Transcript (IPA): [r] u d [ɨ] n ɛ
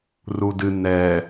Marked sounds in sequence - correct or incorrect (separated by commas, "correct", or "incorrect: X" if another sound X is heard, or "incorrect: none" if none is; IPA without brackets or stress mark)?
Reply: correct, correct